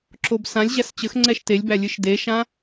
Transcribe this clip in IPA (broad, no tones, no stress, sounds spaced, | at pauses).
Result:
ǁ o b s ã lʲ ʑ æ s t͡ɕ ə x ŋ͡ǀ ɛ ʃ t e lʲ b æ lʲ ɨ ʃ d e ʃ ã